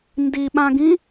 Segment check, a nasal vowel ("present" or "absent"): present